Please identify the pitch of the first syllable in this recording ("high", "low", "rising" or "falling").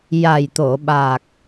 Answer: low